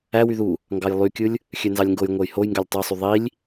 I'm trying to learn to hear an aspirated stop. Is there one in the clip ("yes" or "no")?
no